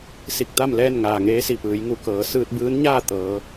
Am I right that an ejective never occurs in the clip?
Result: yes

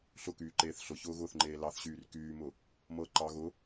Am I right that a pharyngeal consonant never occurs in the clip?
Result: yes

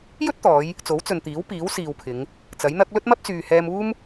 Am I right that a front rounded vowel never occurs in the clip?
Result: no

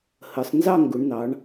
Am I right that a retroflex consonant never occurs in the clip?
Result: no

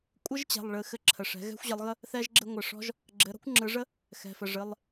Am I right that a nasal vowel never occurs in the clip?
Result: yes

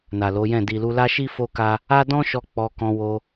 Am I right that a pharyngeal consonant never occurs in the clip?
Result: yes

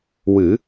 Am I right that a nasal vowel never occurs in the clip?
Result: yes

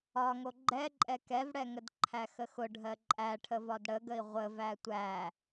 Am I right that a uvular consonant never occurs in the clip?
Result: no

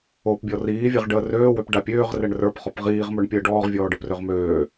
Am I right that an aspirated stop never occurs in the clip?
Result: yes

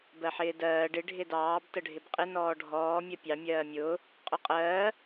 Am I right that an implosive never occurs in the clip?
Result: yes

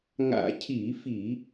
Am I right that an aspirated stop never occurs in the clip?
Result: no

